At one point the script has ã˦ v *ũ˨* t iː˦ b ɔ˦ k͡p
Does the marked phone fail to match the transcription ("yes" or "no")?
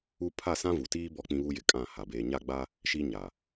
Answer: yes